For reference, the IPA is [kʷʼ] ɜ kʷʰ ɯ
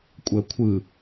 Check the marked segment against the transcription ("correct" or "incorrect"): correct